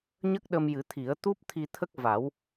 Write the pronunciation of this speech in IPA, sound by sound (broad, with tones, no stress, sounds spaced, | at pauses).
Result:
ɲ ə˦˥ k̚ ɗ ə˧ m j ɨ˨˩˦ t̪ʰ i˨˩˦ ə̯ t̪ u˦˥ p̚ t̪ʰ i˧ t̪ʰ ə˦˥ k̚ v a˨˩˦ w